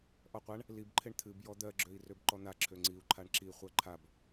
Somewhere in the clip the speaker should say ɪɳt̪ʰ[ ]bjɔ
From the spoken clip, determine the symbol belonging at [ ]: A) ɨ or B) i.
A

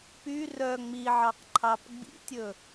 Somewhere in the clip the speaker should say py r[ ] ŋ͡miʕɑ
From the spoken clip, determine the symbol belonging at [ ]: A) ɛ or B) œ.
B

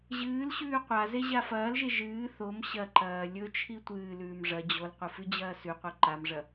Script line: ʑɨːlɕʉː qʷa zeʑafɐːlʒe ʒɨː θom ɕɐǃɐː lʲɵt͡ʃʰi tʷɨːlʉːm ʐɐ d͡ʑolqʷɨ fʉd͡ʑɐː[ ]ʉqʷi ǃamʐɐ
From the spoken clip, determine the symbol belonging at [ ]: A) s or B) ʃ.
A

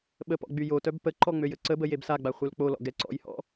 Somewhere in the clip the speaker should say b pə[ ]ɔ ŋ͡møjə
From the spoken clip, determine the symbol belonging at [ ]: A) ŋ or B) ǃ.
B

